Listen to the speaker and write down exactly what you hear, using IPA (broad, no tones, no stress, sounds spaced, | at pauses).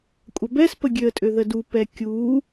kʷʼ ɐ b ɛ s p ə ɡʲ ø ə̯ tʼ ø ð ə d u p ɛ kʲ u